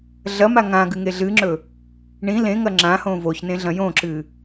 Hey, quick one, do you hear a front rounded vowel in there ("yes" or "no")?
no